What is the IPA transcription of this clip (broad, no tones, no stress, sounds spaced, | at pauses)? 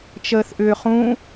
t͡ʃ əː θ ʔ ʏː χ ũ